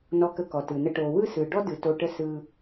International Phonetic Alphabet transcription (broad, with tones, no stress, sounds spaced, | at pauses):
n ɔ˧ k ə˧ k ɔ˨ t ɯ˨ n ə˧ ʈ o˨ w ɯ˦˨ s ɯ˨ ɖ ɔ˦ d ɯ˨ t o˧ ʈ ə˦ s ɯ˧